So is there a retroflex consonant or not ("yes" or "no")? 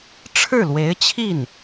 yes